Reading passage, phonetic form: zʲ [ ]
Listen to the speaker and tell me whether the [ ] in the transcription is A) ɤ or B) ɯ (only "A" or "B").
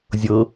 A